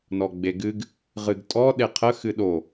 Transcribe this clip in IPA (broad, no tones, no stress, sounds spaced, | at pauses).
n ɔ ɡ͡b e ɡ ɨ ɡ | ʁ ɨ ɡ tʼ ɔ ɗ e qʰ ə x ɨ ɗ o